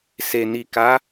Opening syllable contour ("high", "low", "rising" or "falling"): low